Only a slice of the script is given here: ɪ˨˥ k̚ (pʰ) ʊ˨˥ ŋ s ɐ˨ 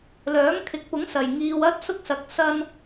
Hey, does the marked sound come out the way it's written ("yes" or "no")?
no